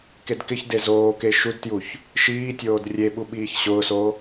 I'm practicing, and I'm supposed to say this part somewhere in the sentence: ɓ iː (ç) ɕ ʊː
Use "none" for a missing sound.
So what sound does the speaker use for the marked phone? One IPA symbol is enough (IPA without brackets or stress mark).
ç